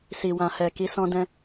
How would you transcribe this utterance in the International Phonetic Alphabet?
s i˨ w ã˨ h ɛ˨ k i˨˦ s ɔ̃˧ d ɛ̃˧

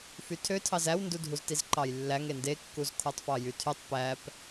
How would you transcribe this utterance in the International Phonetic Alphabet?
f y tʰ ø tʰ ɑ z æ w n d u dʱ u z t i z ǃ ɑ j lː æ ŋ e n d e kː u z kʰ o tˤ f ɑ j y tʰ y tˤ p æ p

